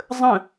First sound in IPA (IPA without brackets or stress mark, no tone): zˤ